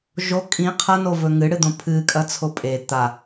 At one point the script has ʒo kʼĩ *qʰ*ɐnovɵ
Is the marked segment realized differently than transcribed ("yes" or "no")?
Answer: no